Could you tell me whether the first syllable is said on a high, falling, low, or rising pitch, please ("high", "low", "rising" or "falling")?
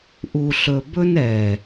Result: low